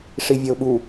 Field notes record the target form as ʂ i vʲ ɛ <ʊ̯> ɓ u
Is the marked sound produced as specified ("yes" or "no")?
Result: yes